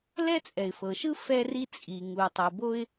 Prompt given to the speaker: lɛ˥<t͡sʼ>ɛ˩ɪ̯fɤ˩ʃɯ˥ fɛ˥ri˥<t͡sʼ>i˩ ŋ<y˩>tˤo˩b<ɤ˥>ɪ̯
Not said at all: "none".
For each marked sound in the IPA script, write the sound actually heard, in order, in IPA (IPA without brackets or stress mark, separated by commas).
t͡sʼ, t͡sʼ, u˩, o˥